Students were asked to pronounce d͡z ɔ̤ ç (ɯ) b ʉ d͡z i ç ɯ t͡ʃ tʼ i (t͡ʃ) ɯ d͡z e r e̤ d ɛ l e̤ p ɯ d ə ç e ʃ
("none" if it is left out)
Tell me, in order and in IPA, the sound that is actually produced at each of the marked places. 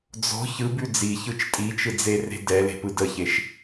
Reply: ɯ, t͡ʃ

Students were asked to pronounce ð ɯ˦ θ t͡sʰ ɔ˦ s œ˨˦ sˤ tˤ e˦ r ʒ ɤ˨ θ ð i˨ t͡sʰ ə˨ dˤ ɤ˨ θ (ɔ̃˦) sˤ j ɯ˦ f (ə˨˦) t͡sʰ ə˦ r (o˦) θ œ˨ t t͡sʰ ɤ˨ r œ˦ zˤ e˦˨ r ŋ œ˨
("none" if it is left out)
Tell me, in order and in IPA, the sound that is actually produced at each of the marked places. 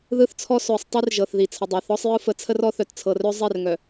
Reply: ɔ˦, ə˨˦, ɔ˦

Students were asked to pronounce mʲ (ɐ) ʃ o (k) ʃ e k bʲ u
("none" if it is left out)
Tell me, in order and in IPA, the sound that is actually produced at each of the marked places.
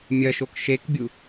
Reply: ɐ, k

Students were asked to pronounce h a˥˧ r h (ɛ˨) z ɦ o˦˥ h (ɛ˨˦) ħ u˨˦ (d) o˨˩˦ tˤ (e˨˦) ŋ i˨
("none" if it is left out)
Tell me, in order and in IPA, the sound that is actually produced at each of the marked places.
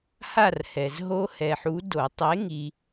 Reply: ɛ˨, ɛ˨, d, e˨˦

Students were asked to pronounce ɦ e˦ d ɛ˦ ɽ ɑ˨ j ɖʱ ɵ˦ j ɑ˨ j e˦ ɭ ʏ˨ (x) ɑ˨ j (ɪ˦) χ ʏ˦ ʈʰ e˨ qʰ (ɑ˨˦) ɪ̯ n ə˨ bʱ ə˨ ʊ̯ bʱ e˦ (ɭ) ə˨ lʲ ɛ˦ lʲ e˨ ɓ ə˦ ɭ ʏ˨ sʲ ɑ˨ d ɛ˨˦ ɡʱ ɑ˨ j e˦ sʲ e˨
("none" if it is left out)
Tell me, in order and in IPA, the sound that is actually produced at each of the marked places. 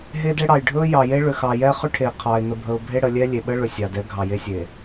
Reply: x, ɛ˦, ɑ˨, ɽ

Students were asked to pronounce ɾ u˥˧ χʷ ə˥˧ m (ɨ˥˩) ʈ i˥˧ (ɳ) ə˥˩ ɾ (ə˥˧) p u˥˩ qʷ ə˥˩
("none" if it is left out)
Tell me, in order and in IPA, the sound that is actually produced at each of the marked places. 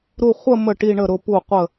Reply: ə˥˩, ɳ, ʊ˥˧

